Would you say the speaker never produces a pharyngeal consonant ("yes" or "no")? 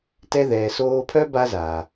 yes